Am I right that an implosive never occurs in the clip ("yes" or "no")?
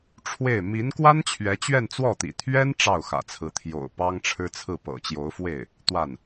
yes